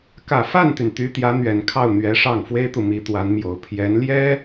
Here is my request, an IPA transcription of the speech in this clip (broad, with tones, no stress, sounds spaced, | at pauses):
k ä˨˩ f a˥˩ n t̪ y˩ n t̪ y˧˥ t̪ j ä˧˥ n̪ ɥ ɛ˨˩ n kʰ ɑ˥˩ ʊ̯ n̪ ɥ ɛ˧˥ ʂ ɑ˥˩ ŋ f w e˥ ɪ̯ t̪ u˨ m i˧˥ t̪ w a˧˥ n m j o˨˩ ʊ̯ pʰ j ɛ˧˥ n l j ɛ˥